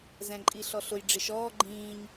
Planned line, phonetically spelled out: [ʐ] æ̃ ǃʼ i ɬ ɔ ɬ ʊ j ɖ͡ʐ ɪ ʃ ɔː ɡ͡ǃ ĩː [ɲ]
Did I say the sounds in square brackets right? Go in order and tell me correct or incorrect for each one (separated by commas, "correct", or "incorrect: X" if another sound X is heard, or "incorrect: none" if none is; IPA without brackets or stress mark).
incorrect: z, correct